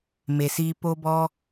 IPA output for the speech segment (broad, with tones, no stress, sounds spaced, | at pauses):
m e˨ s iː˧ p o˧ b ɔ˧